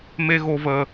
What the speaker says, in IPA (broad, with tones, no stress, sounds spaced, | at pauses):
m e˧ ɣ o˧ v əː˧